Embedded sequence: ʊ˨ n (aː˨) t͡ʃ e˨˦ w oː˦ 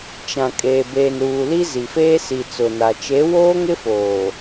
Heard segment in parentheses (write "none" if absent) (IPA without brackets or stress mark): a˨